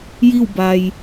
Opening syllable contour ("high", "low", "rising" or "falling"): falling